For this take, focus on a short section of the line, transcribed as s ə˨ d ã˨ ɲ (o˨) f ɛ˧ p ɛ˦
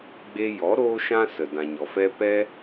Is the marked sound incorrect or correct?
incorrect